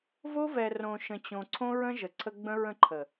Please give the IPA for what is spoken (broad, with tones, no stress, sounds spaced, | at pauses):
v o˦ v ɛ˨ r õ˨ ʃ ə̃˨ t͡ɕ õ˨ ǀʰ õ˦ ɹ ə̃˦ ʒ ə˨ ǀʰ ə˦ ɡ͡b ə̃˦ ɹ ə̃˦˨ ǃʰ ə˨